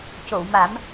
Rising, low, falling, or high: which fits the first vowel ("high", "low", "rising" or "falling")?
low